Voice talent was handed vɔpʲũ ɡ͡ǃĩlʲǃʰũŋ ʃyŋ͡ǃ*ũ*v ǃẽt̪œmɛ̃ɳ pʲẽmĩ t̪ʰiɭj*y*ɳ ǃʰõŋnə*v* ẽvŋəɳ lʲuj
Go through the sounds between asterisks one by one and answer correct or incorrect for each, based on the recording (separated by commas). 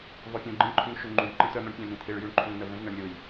correct, correct, correct